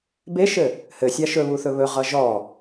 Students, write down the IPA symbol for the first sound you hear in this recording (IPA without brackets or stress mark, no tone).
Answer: b